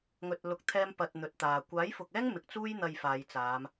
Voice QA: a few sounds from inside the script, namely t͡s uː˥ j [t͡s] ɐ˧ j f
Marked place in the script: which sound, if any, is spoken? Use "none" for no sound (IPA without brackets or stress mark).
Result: n̪